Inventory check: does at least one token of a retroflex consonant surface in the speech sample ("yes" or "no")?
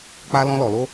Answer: no